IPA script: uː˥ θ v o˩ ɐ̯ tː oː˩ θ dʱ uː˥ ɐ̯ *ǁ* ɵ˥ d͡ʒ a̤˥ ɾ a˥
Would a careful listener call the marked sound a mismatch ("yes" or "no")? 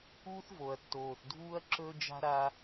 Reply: no